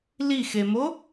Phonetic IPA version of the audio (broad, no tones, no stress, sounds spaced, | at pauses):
l i x e m o